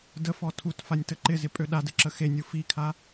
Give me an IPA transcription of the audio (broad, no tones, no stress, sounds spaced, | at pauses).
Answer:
d ə f ɔ tʰ u t f a nʲ t ə ǃ ɪ z ɪ pʼ ø ɗ a d ɘ ǁ ə x e nʲ u f i kʰ a